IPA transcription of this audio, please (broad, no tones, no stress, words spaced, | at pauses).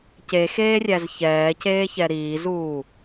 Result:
cexeːrʲæz çɛːceːçɛ ɾiːzuː